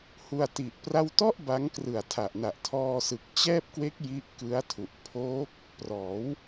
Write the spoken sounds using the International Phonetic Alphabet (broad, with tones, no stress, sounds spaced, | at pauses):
h u˧ a̯ t i˨˩ ʔ p r a˥˩ w t ɔ˥˩ ʔ b a˦˥ ŋ k r ɯ˨˩ a̯ tʰ a˨˩ ʔ n a˨˩ ʔ tʰ ɔː˧ s ɯ˨˩ k̚ t͡ɕ ɛː˥˩ p̚ k w e˦˥ k̚ j i˦˥ ʔ k ɯ˦˥ a̯ tʰ u˨˩ ʔ pʰ oː˦˥ k̚ | p r ɔː˩˦ w